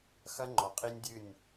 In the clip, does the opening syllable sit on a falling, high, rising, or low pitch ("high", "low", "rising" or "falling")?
high